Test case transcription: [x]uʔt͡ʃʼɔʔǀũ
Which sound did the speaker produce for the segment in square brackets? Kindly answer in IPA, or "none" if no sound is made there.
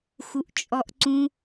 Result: x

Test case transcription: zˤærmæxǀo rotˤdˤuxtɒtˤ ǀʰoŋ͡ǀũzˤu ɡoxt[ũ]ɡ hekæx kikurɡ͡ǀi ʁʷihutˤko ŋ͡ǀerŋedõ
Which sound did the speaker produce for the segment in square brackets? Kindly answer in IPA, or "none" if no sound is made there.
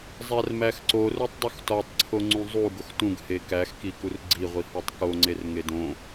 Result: ũ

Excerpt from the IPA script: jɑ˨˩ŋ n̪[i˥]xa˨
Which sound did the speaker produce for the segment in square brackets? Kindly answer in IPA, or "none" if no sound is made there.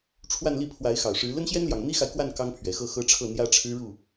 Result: i˥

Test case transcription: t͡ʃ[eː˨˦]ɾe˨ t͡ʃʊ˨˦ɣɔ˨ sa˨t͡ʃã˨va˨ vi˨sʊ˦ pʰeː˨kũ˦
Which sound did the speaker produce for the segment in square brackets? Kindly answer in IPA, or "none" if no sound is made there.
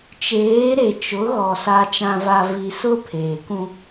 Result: eː˨˦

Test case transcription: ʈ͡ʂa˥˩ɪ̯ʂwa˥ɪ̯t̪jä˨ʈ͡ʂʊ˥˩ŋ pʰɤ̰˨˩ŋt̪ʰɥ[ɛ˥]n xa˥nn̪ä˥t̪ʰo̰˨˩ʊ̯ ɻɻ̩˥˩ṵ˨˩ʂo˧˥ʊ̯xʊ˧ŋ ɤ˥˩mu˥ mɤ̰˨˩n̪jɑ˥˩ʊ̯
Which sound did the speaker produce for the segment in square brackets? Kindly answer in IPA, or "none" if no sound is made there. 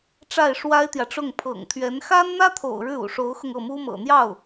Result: ɛ˧˥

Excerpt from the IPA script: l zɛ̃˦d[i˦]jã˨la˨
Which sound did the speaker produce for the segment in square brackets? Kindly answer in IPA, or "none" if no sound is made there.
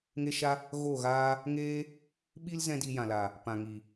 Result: i˧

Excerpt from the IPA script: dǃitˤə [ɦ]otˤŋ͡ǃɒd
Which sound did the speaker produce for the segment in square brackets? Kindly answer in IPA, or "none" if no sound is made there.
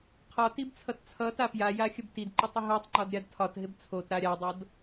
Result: ɦ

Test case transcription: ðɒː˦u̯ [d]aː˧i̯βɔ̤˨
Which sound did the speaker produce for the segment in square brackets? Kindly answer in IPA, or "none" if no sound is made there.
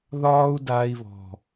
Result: d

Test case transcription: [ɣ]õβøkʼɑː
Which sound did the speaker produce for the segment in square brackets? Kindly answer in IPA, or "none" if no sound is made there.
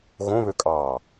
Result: ɣ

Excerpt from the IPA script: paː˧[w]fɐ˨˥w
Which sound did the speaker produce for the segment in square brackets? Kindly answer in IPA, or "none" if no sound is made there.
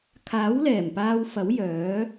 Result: w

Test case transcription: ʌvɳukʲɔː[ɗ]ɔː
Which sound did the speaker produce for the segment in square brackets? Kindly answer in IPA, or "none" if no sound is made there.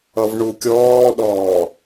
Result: ɗ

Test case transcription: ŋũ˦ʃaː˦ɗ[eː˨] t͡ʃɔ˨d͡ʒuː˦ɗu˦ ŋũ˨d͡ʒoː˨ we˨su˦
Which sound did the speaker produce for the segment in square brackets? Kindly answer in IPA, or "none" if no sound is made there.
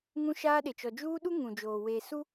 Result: e˨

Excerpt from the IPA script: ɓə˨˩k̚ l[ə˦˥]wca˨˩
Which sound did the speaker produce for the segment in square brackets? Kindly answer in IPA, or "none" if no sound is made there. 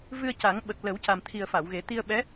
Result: ə˨˩˦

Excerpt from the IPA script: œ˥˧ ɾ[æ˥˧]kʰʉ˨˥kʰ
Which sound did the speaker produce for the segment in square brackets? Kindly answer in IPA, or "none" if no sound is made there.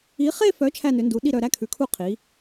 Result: æ˥˧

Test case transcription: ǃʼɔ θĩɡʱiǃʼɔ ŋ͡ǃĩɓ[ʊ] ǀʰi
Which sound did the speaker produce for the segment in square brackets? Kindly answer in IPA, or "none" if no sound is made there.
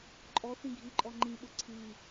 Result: ʊ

